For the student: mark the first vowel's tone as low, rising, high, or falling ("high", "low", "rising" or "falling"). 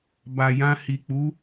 low